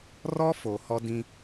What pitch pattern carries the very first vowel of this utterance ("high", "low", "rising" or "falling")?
high